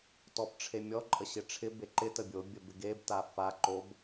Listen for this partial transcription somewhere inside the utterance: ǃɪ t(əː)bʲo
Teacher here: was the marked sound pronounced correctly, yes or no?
no